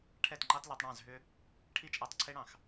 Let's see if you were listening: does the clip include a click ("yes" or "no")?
yes